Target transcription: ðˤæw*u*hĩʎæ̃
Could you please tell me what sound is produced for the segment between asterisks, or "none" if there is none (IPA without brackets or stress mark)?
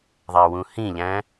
ũ